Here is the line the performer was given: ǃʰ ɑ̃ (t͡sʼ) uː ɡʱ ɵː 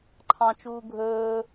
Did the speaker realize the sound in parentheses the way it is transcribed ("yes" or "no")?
no